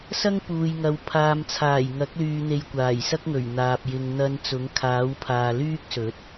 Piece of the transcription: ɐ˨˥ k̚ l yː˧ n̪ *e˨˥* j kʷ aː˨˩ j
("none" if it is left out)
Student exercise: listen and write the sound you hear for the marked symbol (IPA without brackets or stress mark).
e˧